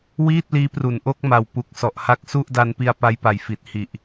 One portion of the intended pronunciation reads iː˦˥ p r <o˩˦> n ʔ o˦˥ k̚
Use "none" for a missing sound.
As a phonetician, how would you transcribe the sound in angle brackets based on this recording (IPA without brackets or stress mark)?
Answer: u˩˦